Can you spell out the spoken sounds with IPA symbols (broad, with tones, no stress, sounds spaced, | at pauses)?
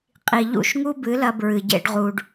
qʼ i˨ ʎ ṵ˦˨ ʃ ŋ u˦ b ɨ˨˦ l ɐ˧ b ɹ ɨ˨ ɟ ḛ˦ ɖ ʁ u˧ ɖ